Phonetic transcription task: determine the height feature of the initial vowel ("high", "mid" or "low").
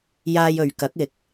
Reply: low